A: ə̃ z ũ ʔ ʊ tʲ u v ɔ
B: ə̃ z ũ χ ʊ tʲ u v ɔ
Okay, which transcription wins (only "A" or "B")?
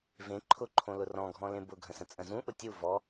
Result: A